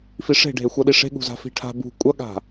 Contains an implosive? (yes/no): yes